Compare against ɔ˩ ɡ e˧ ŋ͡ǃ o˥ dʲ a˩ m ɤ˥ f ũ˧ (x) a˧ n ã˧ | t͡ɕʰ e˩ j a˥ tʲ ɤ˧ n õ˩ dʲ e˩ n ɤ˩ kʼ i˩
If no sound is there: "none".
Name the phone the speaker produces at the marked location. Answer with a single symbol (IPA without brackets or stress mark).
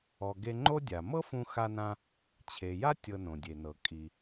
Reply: x